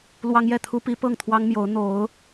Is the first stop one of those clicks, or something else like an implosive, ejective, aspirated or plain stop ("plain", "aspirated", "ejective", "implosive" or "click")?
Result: aspirated